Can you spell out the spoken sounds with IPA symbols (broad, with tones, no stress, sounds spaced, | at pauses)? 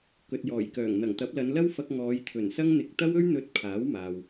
k ɵ˨ t̚ j ɔː˨˩ j k œː˨˩ ŋ n̪ ɐ˨˩ ŋ t̪ ɐ˨˥ p̚ l ɐ˨˧ n l ɐ˥ w f ɐ˧ k̚ ŋ ɔː˨˧ j t̪ʰ ɵ˨˩ n s ɐ˥ ŋ n̪ ɪ˧ k̚ t̪ ɐ˥ w ɵ˥ ɥ n̪ ɵ˧ t̚ pʰ aː˨˥ w m aː˨ w